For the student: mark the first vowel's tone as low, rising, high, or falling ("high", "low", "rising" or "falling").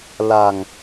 low